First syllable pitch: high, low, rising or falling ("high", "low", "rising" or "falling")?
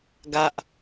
high